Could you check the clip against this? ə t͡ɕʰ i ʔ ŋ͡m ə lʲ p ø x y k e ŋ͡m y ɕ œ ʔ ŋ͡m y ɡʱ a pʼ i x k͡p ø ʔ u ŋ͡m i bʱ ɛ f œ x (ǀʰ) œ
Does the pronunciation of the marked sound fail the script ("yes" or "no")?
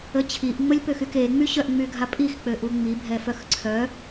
no